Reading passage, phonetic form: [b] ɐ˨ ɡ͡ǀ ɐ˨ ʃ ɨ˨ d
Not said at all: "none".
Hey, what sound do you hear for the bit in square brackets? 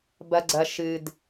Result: b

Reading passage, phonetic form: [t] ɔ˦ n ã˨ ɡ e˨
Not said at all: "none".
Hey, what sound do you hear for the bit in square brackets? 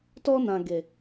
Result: t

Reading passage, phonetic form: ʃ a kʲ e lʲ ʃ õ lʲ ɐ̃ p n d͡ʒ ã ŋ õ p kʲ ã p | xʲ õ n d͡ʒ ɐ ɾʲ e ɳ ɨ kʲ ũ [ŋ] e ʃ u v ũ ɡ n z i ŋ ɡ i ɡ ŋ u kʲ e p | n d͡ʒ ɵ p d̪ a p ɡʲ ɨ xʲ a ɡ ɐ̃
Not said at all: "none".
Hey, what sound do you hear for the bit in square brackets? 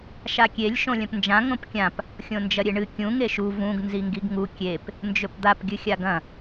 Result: ŋ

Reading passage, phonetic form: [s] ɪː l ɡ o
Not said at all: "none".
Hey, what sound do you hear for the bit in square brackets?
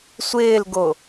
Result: sʷ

